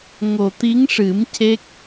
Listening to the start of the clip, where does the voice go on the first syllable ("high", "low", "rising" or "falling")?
low